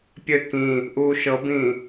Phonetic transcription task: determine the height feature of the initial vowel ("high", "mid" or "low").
mid